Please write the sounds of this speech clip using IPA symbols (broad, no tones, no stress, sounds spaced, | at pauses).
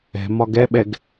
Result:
ɛ̤ m ɒ ɡ ɛ ɓ ɛ ɡ